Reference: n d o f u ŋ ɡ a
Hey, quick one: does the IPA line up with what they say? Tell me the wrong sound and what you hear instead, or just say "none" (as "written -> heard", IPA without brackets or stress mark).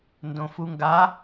o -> õ